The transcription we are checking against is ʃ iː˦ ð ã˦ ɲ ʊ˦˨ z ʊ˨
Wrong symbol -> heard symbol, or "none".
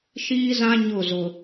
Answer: ð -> z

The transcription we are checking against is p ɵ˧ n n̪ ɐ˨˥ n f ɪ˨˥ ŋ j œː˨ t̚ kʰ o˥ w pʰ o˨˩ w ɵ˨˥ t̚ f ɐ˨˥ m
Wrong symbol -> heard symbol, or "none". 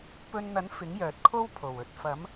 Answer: none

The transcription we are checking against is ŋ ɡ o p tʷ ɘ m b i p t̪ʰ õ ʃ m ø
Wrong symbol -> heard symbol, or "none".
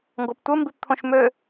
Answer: none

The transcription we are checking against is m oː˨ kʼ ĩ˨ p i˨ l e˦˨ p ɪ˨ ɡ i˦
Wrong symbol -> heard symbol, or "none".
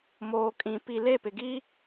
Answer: none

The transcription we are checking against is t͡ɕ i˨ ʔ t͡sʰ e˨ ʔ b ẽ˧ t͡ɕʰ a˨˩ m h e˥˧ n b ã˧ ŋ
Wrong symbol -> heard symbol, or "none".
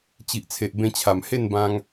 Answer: none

